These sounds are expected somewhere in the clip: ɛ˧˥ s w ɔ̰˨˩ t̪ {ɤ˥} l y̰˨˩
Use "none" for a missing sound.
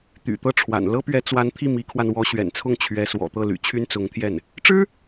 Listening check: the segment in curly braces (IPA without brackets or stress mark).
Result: ɤ˥˩